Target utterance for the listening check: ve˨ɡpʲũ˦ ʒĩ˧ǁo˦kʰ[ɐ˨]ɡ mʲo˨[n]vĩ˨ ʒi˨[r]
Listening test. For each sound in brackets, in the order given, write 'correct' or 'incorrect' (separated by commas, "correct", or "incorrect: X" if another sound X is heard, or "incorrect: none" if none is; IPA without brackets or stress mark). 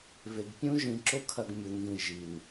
incorrect: ɐ˧, correct, incorrect: n